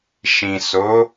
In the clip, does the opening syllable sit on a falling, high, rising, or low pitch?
low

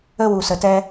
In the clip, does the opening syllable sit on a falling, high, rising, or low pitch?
high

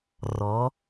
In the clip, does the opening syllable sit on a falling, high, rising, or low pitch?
rising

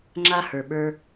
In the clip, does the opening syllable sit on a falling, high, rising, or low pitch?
high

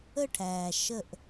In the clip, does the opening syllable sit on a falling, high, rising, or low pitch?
falling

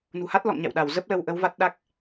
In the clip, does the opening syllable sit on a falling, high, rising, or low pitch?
low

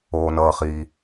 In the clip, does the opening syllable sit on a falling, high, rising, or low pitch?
low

